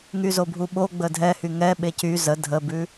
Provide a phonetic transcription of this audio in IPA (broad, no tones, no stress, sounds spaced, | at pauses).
ŋ y z o bʱ u ɓ o ɡ͡b ə dʱ ɛ h y ŋ ɛ ɓ e c y z ə dʱ ə b ʉ